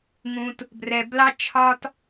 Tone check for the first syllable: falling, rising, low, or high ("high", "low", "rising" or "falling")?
low